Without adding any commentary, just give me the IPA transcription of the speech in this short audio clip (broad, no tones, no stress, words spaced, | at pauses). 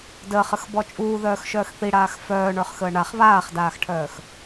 dəːχəxbɔ t͡ʃʼuːðœːxʃœːx θiɽaːx fœːɳə˞χxəː ɳaχ βaːχdaːxʈʰœːx